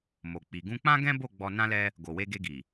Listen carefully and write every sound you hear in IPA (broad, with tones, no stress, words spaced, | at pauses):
mo˨k͡pi˨ ɡũ˧k͡pã˦ ɡɛ̃˦bo˦˨ ɡ͡bɔ˧nã˦lɛ˦ | ɡo˨we˧ɡe˧ɡi˨